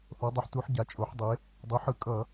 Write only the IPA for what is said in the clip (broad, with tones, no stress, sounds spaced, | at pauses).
θ o˩˥ dˤ a˩˥ ħ t u˩˥ ħ ɟ a˩˥ t͡ʃʼ o˩˥ ħ dˤ e˩˥ | dˤ ɯ˩˥ ħ ɯ˧˩˧ kʼ ʌ˧˩˧